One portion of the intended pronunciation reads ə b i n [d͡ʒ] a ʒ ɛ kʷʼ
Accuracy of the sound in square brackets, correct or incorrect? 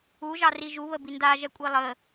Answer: incorrect